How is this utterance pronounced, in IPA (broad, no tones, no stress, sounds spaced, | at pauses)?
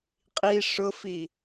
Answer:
qʼ i ʂ ʊ f i